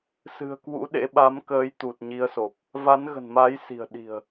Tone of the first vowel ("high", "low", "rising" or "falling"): low